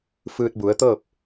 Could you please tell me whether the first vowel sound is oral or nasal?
oral